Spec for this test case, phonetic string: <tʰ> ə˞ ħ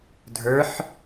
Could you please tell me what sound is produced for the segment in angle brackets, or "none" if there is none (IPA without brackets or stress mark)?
dʱ